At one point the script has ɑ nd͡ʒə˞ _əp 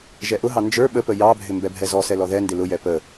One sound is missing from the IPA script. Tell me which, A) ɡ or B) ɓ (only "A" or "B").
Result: B